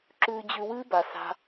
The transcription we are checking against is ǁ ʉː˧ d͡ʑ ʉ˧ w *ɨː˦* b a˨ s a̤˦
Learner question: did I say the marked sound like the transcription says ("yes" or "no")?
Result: yes